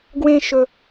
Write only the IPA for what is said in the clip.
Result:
ɡ w ẽ˥ ʃ ɵ˥

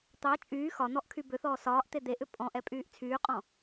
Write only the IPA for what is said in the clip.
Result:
t̪ ɑ t͡ʃʼ yː x ɒ n̪ ɔ ʔ kʰ y b ʏ θ ɔː s ɒː ʔ t̪ e d̪ e ʔ ʏ pʼ ɔ̃ ʔ ɛ pʼ yː ʔ t͡sʰ yː qʼ ɔ̃

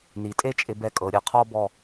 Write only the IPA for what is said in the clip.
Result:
n i˩˧ tʼ e˥ t͡ʃʼ ɪ˧ b ɛ˧ kʼ ɤ˩˧ ɾʲ ɯ˧˩ qʰ ɔ˥˧ b ɔ˧˩

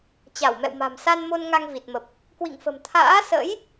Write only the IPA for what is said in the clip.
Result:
t͡ɕ a˧˩ w m ɛ̰˧˨ w m a̤˨˩ m s a˧ n m o˧ n ŋ a˧ ŋ v i˨˩ t̚ m ə˨˩ p̚ | k w ḭ˧˨ ŋ f ə̤˨˩ m t̪ʰ a̰ː˧˥ s ə̰˧˥ j

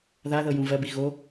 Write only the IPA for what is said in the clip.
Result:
ð a ð ɤ j ũ v ɜ b i ɣ o

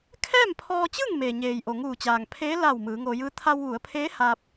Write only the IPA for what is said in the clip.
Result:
kʰ ɛː˥˨ m pʰ ɔː˧ t͡ɕ ɯː˥˨ ŋ m e˩ ɲ eː˩ j ʔ o˩ ŋ uː˧˩ t͡ɕ aː˩ ŋ pʰ eː˧˥ l a˧˩ w m ɯː˩˧ ŋ oː˧ j ɯː˧˥ t̪ʰ a˧ w ʋ u˩˧ ə̯ pʰ eː˧˥ h a˧ p̚

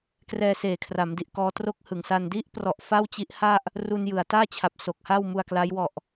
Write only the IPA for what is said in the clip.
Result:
k r ɛː˧ s eː˨˩ kʰ r a˩˦ m d i˨˩ ʔ k ɔː˦˥ t r o˦˥ k̚ h ɯ˩˦ ŋ s a˧ n d i˦˥ ʔ p r ɔ˨˩ ʔ f a˥˩ w t͡ɕ i˦˥ ʔ h a˥˩ ʔ | r u˧ n j ɯ˨˩ a̯ t aː˥˩ t͡ɕʰ a˨˩ p̚ s o˨˩ k̚ h a˥˩ w m u˧ a̯ k l a˦˥ j w ɔ˨˩ ʔ

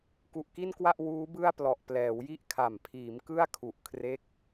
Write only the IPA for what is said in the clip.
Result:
k u˨˩ ʔ k i˥˩ n k w a˥˩ ʔ w uː˦˥ b ɯ˥˩ a̯ p l ɔ˨˩ ʔ p l ɛː˩˦ w j i˥˩ ʔ kʰ a˨˩ m pʰ iː˩˦ m k ɯ˥˩ a̯ kʰ u˨˩ ʔ kʰ r e˦˥ k̚

